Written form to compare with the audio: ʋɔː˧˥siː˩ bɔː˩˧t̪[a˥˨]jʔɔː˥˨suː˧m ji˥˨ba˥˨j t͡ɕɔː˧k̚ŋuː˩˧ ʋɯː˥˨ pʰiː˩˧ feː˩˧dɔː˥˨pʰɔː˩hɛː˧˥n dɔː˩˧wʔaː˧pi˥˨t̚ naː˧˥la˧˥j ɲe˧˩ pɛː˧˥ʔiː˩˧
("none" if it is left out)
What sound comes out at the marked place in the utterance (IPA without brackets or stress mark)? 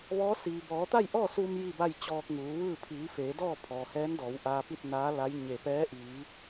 a˥˨